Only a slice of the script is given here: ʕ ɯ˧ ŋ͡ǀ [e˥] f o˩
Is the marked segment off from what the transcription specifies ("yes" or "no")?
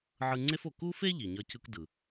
no